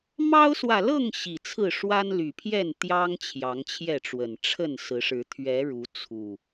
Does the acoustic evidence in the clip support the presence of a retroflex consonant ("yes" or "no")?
yes